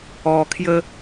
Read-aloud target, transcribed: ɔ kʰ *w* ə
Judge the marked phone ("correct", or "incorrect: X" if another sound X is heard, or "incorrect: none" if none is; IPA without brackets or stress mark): incorrect: j